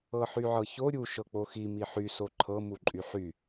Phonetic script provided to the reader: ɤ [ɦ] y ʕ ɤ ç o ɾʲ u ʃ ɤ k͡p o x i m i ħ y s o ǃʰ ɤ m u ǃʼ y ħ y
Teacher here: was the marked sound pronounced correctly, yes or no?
no